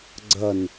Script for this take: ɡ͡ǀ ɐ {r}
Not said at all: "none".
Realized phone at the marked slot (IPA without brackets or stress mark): n